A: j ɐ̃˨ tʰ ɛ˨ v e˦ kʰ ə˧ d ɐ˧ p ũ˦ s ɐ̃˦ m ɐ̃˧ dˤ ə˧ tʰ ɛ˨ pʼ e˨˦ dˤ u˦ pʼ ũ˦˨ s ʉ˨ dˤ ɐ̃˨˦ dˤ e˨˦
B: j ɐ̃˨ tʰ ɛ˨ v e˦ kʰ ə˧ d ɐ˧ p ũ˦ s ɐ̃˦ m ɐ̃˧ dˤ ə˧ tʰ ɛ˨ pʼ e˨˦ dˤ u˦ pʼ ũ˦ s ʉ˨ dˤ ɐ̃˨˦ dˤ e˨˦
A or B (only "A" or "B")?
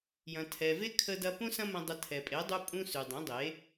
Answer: B